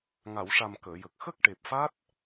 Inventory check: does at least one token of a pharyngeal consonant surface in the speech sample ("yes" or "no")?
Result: no